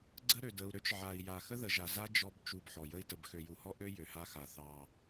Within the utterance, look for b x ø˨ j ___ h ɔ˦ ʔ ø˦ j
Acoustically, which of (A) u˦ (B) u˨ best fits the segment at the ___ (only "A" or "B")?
B